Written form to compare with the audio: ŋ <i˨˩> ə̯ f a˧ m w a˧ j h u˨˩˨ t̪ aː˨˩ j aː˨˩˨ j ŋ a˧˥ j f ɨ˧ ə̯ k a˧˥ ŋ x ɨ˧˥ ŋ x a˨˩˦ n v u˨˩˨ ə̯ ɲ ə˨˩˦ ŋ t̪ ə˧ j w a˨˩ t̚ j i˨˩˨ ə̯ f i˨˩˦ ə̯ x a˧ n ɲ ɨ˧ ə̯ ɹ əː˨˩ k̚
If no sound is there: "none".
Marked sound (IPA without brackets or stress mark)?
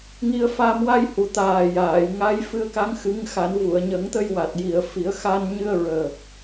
i˧